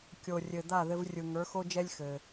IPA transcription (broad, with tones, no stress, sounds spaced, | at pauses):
kʲ o˩ rʲ ɘ˩ d̪ a˥˩ ð ɘ˧ v rʲ ɯ˩ ŋ ə˞˩˥ x o˥ d͡ʒ ɛ˥ lʲ x ɘ˩